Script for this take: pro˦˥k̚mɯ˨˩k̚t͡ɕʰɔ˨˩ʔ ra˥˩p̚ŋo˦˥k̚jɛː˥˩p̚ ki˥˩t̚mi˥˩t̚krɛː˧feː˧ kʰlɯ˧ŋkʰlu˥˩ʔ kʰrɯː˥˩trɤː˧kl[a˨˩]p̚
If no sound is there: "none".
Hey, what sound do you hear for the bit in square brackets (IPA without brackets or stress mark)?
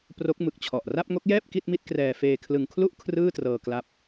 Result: a˦˥